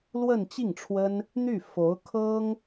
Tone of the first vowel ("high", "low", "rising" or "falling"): falling